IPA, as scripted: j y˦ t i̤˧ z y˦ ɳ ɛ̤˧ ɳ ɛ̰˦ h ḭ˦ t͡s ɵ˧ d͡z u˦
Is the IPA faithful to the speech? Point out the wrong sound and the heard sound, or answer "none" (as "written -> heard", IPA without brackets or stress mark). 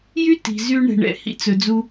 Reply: none